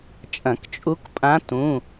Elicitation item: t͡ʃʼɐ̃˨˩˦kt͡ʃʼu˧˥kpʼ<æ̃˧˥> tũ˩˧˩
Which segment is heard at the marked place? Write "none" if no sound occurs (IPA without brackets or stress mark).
ã˧˥